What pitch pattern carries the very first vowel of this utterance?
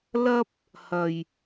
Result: high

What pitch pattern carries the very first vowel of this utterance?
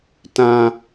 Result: high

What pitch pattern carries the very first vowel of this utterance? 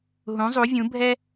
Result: rising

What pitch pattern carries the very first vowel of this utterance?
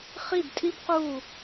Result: falling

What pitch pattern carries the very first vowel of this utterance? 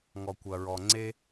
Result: low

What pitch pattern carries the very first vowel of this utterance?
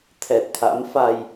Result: low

